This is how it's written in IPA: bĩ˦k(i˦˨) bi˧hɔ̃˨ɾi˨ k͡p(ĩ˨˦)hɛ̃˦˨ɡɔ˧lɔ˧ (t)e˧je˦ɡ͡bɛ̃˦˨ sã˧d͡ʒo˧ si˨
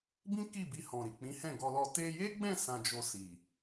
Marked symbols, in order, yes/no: yes, yes, yes

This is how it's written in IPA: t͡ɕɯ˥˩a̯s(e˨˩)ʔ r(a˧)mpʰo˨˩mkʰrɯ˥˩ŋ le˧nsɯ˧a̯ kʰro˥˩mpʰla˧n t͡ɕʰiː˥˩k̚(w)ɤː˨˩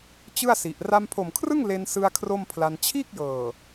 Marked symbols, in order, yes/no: no, yes, no

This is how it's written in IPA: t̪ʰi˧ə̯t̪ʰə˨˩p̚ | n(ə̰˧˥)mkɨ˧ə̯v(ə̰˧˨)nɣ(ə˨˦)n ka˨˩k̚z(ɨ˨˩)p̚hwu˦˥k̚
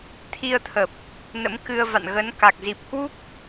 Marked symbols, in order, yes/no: yes, no, yes, no

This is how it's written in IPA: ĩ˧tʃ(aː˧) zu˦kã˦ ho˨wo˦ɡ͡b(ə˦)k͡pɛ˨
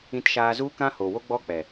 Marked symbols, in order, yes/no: yes, no

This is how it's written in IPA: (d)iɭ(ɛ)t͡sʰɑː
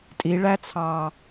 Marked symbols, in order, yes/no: no, no

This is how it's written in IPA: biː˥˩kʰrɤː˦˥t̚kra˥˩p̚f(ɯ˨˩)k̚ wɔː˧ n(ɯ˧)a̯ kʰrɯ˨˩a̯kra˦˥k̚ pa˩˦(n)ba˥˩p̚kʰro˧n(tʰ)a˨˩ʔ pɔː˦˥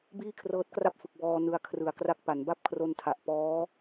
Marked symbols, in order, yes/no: yes, yes, yes, yes

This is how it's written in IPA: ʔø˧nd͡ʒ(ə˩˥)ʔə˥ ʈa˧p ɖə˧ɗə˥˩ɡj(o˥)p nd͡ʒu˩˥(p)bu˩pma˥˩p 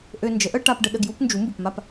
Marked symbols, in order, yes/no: yes, no, no

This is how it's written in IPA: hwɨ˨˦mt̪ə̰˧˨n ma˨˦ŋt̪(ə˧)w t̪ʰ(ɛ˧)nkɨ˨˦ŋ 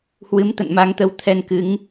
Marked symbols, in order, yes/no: no, yes

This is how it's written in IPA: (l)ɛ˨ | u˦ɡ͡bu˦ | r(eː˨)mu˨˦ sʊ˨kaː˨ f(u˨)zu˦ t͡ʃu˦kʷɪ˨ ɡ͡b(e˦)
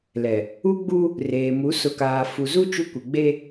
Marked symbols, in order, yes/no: yes, yes, yes, yes

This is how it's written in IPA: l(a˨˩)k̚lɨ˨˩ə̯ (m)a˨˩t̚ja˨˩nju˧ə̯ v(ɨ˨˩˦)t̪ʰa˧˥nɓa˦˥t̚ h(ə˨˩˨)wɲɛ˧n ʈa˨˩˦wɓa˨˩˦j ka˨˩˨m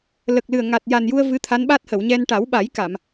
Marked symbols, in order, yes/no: no, no, no, yes

